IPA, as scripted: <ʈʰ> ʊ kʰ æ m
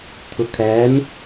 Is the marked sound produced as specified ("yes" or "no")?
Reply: no